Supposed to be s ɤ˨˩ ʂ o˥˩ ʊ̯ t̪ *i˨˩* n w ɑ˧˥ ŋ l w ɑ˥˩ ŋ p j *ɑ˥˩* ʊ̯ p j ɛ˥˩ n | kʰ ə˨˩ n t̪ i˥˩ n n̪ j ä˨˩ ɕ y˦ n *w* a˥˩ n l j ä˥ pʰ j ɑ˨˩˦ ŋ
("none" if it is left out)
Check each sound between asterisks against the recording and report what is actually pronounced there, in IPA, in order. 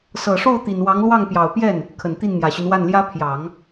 i˨˩, ɑ˨˩, w

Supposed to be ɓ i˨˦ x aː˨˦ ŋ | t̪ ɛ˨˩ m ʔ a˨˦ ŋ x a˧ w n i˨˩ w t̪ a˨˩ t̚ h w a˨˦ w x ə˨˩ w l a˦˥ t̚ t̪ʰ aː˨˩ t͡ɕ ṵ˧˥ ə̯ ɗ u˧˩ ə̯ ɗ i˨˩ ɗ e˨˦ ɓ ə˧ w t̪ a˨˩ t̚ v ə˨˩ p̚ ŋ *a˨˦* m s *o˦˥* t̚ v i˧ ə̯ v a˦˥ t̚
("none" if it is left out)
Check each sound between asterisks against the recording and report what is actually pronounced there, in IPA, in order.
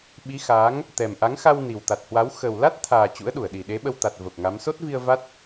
a˨˦, o˦˥

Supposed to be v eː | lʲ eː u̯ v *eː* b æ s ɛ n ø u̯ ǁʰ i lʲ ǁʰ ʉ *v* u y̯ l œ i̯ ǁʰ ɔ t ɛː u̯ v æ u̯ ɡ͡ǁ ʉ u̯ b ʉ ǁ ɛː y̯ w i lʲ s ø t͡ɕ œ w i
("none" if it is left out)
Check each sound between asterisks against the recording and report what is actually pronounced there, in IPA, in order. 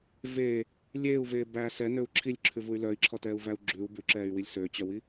eː, v

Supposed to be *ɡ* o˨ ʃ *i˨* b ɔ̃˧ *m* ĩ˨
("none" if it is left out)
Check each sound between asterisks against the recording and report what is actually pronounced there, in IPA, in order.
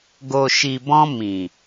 ɡ, i˨, m

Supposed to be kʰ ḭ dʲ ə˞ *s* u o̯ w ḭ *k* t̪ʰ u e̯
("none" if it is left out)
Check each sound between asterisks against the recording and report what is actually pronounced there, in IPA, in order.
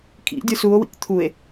s, k

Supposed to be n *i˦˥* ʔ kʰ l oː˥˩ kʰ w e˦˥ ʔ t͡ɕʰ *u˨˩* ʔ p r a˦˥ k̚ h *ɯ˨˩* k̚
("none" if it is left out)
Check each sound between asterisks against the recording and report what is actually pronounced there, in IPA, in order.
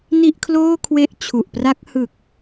i˥˩, u˨˩, ɯ˨˩

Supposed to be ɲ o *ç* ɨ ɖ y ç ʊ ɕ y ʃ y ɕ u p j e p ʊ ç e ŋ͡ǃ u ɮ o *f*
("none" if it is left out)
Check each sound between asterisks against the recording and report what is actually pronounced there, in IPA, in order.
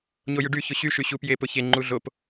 j, p

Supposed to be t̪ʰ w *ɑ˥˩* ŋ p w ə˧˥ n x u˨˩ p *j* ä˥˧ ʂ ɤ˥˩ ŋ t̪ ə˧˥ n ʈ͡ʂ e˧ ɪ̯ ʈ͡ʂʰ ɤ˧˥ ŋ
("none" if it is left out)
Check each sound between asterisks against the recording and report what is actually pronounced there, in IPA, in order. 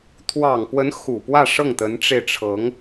ɑ˨˩, w

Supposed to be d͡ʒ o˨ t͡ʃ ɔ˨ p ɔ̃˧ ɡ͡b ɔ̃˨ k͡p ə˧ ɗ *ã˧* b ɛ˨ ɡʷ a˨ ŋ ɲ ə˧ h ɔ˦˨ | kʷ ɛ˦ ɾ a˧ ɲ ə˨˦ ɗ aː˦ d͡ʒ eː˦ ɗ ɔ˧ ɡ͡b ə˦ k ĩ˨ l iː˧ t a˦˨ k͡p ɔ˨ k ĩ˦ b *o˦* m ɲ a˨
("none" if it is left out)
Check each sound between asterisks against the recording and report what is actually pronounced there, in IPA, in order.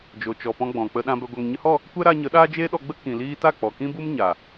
ã˧, u˦

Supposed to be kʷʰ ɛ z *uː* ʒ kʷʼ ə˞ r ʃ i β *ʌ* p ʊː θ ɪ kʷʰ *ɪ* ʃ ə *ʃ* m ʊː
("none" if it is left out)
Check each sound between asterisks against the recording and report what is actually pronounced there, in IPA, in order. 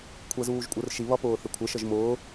uː, ʌ, ɪ, ʒ

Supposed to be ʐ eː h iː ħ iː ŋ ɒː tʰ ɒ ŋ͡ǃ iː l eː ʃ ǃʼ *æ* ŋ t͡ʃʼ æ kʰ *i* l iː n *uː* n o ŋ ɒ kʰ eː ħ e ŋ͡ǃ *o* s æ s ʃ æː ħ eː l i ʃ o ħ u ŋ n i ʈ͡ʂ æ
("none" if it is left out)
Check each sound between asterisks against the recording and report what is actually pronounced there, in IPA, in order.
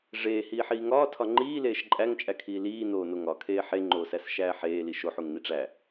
æ, iː, oː, oː

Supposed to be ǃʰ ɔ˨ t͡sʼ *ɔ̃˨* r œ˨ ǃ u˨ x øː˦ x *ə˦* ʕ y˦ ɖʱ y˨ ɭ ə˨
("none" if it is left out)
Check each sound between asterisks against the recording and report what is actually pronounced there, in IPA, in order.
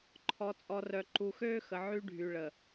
ɔ˨, ə˨

